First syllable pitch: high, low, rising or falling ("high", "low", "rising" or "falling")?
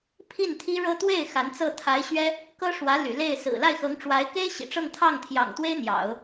falling